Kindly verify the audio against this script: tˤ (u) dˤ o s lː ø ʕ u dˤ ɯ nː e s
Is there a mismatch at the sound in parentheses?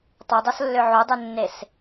yes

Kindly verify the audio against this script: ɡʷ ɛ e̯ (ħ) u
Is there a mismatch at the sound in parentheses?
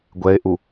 yes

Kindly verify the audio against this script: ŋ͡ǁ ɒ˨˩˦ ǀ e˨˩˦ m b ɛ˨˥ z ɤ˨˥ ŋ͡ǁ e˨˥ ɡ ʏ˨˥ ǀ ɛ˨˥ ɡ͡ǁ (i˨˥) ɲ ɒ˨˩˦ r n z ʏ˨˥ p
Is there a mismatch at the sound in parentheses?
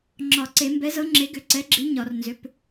no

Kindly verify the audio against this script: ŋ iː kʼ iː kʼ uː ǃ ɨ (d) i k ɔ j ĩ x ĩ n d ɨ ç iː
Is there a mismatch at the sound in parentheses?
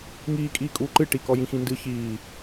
yes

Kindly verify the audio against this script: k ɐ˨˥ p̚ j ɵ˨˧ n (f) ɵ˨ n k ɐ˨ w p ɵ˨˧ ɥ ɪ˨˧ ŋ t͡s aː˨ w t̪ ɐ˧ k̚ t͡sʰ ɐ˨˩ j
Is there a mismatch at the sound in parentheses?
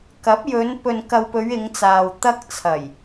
yes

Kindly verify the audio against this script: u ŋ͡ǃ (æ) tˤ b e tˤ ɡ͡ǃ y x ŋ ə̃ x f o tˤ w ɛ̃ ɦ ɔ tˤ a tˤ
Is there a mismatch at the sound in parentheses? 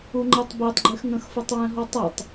yes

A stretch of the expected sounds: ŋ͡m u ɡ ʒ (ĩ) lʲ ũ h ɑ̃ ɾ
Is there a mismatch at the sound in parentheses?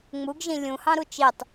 no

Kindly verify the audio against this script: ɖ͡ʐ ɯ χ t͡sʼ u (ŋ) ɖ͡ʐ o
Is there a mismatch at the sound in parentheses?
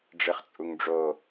no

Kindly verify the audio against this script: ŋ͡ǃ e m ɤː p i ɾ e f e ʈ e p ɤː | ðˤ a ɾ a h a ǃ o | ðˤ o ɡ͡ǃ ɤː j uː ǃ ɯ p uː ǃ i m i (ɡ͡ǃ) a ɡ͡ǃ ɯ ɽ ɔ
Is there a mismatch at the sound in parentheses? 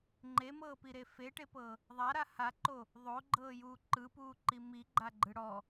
no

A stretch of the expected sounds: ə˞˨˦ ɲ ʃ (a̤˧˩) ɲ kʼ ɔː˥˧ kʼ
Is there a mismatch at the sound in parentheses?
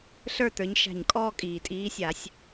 no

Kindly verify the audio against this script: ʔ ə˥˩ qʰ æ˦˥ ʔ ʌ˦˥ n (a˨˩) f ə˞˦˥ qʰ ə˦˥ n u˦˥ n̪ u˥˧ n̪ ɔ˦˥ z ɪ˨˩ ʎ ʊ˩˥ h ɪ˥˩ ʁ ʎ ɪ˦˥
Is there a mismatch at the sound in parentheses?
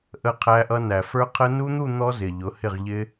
yes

